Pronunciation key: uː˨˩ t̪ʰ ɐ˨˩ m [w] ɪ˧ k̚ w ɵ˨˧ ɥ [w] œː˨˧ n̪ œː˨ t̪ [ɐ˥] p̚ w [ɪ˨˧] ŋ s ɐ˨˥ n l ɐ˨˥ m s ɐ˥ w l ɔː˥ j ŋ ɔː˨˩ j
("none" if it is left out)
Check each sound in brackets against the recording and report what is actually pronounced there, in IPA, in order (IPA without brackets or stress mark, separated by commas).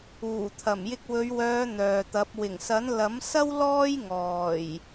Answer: j, w, ɐ˨˥, ɪ˨˩